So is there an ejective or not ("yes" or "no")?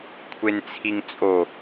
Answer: yes